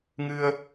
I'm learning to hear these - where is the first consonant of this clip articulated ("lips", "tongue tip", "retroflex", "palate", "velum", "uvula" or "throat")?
velum